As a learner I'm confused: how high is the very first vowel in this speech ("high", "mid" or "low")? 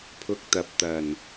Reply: high